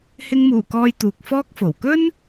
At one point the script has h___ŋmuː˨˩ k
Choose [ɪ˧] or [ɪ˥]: ɪ˧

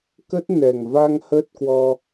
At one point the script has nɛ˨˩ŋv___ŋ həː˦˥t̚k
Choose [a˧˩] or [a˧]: a˧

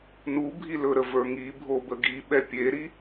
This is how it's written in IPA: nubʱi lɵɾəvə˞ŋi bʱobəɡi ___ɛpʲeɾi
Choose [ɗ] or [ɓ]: ɓ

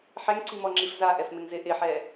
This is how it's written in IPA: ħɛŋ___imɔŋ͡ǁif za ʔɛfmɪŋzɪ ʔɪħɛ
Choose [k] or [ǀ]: ǀ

